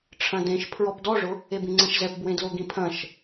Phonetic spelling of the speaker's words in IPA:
ʈ͡ʂʰ ɐ̃ d ẽ ʃ pʰ ɹ ɔ p d ɔ ʐ ʊ | e b ĩ ŋ͡ǀ ɛ̃ ʃ z ɛ p b w ẽ d l o ɡ ĩ pʰ ɐ̃ ʃ

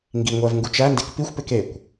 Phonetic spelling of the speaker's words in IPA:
ŋ ɡ i ŋʷ æ v ŋ ɡ u t͡ʃ æ n d e k p i xʷ p e k e kʷ

